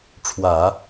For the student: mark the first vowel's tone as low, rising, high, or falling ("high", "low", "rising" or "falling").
low